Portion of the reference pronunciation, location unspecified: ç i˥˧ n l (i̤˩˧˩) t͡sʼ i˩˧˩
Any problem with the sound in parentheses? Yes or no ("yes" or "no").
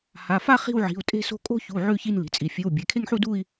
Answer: no